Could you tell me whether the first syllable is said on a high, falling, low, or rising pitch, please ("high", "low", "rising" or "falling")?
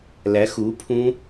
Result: rising